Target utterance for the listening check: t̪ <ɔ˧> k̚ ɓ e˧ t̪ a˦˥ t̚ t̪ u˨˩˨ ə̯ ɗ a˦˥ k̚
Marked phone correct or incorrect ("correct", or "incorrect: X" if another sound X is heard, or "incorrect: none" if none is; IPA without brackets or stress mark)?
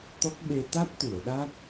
incorrect: ɔ˦˥